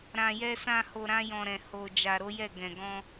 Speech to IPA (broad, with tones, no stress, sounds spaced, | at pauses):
ɾ ã˨ j ɛ˧ s ã˧ h o˧ ɾ ã˦ j ɔ̃˧ ɾ ɛ̃˨ h o˨ d͡ʒ a˨ ɾ o˨˦ j ɛ˦˨ ɡ ɛ̃˨ ɡ ɔ̃˧